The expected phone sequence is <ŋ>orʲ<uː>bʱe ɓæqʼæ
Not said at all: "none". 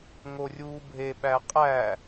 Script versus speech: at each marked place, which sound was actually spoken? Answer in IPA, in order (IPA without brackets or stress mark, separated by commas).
ŋ, uː